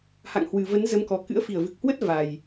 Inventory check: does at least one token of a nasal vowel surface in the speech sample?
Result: no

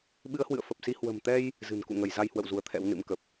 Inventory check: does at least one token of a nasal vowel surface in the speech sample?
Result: no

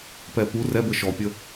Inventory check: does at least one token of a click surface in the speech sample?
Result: no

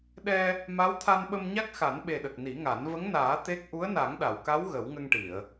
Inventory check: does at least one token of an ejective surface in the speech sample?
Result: no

